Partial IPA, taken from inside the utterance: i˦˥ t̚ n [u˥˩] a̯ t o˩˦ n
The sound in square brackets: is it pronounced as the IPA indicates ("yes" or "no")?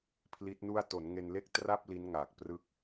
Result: yes